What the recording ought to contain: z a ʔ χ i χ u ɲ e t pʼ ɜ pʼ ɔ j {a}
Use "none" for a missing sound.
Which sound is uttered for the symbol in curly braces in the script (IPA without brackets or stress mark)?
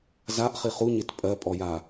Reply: a